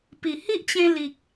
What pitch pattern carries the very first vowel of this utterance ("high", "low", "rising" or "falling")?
low